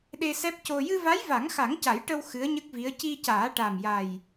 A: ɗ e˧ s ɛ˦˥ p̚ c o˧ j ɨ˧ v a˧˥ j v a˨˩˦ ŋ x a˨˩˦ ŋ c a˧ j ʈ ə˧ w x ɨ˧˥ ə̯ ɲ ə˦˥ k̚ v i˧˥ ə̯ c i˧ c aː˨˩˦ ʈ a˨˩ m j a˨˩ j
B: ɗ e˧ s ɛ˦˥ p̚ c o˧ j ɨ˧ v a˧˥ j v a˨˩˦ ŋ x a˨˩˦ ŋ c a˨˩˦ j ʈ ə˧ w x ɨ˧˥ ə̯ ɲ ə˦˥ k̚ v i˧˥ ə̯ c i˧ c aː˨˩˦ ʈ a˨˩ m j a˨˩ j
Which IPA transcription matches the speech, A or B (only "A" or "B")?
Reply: B